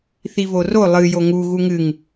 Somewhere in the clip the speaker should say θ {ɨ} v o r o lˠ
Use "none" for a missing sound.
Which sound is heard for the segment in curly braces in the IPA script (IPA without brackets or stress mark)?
i